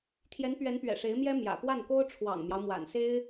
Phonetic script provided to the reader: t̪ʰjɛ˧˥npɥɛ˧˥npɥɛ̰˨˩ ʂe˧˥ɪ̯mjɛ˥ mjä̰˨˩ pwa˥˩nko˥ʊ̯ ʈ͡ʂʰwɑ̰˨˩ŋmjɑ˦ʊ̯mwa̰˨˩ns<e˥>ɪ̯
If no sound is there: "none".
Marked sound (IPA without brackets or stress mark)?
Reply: e˥